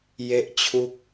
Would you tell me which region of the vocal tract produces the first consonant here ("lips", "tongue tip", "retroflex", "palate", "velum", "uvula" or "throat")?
palate